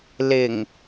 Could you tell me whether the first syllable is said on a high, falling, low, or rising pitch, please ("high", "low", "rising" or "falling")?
low